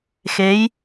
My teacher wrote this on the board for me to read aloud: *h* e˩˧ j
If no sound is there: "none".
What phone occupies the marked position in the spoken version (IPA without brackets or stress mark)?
x